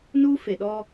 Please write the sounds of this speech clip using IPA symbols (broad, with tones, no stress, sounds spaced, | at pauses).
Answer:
n uː˦ f e˨ ɗ ɔ˦